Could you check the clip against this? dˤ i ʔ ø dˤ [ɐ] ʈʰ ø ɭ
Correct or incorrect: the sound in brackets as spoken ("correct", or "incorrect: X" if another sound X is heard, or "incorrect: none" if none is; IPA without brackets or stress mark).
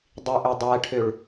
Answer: incorrect: æ